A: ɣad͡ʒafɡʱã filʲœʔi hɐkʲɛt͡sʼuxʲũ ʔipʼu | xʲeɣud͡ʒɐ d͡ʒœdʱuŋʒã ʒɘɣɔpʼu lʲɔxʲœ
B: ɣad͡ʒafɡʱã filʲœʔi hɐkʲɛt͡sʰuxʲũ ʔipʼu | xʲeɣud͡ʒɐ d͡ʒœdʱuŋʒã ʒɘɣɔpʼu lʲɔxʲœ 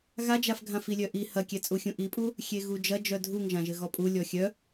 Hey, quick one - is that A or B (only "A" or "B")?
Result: A